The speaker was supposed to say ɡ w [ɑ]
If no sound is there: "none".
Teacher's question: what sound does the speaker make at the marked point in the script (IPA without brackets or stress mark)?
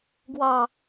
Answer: ɑ